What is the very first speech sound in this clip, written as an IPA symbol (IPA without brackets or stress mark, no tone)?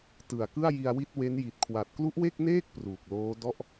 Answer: t